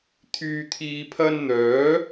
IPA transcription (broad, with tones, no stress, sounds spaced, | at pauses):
t̪ʰ yː˨ t̪ʰ iː˨ pʰ ɐ˧ n n̪ œː˨˥